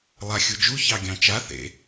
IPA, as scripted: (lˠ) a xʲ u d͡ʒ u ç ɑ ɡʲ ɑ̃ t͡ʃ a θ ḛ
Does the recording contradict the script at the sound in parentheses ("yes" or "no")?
no